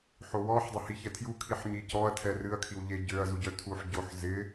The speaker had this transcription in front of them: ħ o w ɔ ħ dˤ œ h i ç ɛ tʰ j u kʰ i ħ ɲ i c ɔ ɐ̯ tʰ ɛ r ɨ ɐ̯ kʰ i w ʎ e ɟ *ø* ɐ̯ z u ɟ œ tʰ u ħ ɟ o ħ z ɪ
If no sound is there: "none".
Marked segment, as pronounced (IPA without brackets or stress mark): ø